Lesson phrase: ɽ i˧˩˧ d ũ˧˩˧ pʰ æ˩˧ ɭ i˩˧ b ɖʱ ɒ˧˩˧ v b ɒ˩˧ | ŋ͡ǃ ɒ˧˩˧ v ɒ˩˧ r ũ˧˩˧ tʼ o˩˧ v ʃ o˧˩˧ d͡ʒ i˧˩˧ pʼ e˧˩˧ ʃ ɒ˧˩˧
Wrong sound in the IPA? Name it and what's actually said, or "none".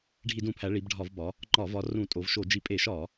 ɽ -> ɖʱ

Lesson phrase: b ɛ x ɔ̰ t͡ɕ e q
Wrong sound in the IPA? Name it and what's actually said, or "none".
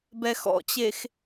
q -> x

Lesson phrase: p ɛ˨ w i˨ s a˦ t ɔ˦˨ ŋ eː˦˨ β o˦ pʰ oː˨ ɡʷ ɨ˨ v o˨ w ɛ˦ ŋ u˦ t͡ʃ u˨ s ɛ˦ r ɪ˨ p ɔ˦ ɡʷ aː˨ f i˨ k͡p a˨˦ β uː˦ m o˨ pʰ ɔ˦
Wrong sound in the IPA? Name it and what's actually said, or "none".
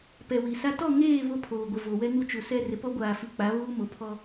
ɨ˨ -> ɪ˨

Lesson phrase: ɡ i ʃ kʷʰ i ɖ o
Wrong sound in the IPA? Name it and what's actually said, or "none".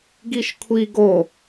ɖ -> ɡ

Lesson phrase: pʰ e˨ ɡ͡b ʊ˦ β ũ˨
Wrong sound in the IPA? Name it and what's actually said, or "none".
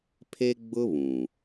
e˨ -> e˦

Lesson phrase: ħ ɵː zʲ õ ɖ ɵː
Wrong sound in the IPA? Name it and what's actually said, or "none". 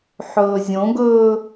ɖ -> ɡ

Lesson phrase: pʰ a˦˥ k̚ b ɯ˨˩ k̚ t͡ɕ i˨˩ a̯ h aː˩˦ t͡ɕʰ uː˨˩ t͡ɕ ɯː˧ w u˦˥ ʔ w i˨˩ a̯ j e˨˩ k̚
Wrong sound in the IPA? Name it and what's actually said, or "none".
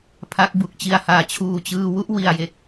ɯ˨˩ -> u˨˩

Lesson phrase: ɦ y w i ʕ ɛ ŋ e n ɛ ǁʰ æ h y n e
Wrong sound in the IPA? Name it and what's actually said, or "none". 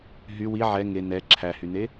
none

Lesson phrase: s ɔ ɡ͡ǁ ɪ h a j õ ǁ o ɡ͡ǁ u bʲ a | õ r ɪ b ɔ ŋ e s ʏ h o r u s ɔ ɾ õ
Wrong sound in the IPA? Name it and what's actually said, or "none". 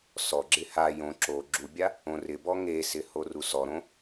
ʏ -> ɪ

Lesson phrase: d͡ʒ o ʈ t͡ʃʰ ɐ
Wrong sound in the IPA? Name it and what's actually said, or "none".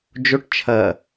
none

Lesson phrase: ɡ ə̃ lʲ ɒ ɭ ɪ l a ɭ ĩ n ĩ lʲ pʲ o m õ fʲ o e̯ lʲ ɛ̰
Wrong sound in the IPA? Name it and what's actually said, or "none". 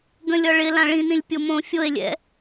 a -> ã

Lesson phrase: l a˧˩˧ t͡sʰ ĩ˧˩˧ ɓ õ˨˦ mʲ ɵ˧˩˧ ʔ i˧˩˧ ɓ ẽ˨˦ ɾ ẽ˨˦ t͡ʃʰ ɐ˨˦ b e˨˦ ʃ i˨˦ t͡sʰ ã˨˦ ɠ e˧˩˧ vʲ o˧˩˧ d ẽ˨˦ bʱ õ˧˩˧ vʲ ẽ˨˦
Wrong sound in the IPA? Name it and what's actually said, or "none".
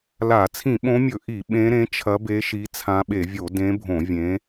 ɠ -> ɓ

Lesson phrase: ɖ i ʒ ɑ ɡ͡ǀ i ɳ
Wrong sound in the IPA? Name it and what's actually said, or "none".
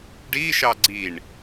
ʒ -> ʃ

